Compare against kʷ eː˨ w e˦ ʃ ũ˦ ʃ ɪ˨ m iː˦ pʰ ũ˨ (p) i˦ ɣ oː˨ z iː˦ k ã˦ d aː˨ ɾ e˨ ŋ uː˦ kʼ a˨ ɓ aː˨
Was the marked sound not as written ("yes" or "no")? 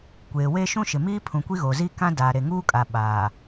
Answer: yes